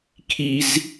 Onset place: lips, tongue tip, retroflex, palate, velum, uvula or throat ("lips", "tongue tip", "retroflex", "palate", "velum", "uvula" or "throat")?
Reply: velum